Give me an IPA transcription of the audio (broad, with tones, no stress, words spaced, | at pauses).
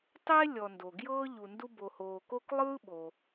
tˤeː˥ lʲɔ˨ndo˩ɡjɤː˥ ʎu˨ ndu˦ bo˨hoː˨ko˦k lˠɯː˥ɓo˨